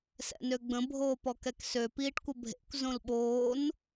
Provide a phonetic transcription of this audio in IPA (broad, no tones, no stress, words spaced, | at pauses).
sɛ̰nøɡ͡bə̃ bʱoːpɔkɛksø piːʈkʷəbʱḛkʷ zõlɓoːn